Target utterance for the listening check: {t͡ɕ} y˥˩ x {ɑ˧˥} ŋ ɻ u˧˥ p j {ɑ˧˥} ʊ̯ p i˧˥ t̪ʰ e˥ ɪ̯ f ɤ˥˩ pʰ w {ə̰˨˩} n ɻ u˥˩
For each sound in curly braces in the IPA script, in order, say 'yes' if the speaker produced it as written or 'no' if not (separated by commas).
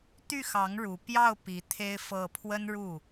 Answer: no, yes, no, no